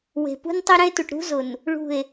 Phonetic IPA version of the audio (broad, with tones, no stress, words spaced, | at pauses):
we̤˨pṳ˦n tˤi˦ɾɛ̃˦e̯tu˨ʈ ɾṳ˦zʊ˨n | ɭṳ˦˨e̯